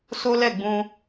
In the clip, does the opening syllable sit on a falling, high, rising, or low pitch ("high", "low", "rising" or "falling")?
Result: high